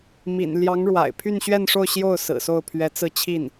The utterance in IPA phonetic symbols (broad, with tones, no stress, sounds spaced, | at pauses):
m ḭ˨˩ n l j ɑ˧˥ ŋ ɻ w a̰˨˩ ɪ̯ pʰ y˥˧ n ɕ ɥ ɛ˥˧ n ʂ o˥˧ ʊ̯ ɕ j o˥˩ ʊ̯ s ɹ̩˨˩ s o˥˩ ʊ̯ pʰ ɥ ɛ˧˥ t͡s ɹ̩˥˧ t͡ɕʰ i˥˩ n